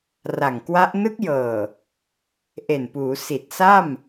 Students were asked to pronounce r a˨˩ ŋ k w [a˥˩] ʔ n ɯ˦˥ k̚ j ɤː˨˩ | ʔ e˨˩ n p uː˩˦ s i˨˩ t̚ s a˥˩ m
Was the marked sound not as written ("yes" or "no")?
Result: yes